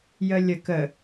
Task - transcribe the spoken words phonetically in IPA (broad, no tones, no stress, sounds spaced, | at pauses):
j ə lʲ ə k ə